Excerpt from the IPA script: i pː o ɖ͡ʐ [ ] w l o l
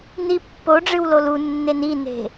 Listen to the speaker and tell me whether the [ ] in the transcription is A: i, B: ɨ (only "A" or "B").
B